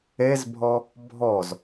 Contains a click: no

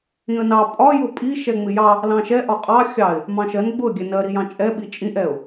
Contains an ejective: yes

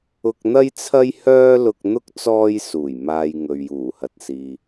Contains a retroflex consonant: no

